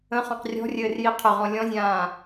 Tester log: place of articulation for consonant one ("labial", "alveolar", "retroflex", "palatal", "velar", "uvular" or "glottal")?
uvular